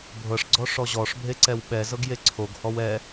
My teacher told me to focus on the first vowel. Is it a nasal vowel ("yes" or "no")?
no